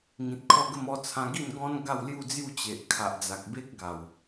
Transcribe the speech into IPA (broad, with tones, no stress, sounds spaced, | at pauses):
ŋ ĩ˨ t̚ kʰ ɔ˥˧ ɡ ə˥˧ m ɔ˦ t͡sʰ ã˧ ɡ i˥˧ n ɡ ɔ̃˦ n ɡ a˥˧ w l j u˥˧ d͡z j u˥˧ t͡ɕ e˨ ʔ kʰ a˨ ʔ d͡z a˨ k̚ b e˦ k̚ ɡ a˨˩ w